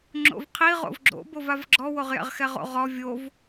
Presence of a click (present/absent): present